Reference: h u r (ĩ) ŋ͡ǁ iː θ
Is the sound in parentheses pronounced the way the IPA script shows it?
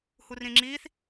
yes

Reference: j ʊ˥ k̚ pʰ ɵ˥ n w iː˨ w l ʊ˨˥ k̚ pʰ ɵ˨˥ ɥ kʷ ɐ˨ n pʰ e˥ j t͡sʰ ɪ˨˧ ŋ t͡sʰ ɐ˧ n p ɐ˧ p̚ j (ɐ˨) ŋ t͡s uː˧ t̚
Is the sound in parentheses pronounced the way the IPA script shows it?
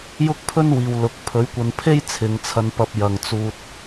yes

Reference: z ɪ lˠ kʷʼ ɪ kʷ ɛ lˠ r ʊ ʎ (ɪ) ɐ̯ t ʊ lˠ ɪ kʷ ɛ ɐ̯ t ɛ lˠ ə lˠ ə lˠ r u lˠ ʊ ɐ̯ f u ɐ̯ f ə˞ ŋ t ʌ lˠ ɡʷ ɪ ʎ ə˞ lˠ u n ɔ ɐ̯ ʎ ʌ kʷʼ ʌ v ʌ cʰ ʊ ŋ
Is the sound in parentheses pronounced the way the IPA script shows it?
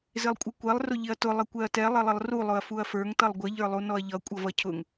yes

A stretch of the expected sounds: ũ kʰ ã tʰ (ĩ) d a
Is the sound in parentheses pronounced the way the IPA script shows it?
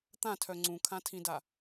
yes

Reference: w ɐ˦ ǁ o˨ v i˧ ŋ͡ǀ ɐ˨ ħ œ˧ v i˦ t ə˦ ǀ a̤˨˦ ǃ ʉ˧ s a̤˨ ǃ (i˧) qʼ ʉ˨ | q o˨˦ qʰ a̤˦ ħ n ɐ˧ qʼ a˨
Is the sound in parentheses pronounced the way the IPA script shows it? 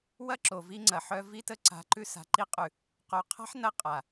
yes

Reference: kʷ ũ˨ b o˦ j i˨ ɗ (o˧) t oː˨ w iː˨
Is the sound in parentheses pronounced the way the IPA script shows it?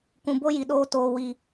no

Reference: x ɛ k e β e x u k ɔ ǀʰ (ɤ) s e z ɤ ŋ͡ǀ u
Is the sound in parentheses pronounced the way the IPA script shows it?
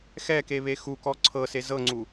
yes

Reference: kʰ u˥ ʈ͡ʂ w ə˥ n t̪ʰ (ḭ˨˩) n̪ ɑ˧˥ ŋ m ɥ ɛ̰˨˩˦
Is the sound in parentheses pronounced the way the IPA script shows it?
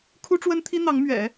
no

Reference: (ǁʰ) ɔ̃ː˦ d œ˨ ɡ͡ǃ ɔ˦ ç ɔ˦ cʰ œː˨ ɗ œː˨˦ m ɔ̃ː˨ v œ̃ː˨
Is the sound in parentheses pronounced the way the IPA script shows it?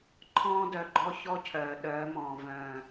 no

